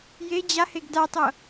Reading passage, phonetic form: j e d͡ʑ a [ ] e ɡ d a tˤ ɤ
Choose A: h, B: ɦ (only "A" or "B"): A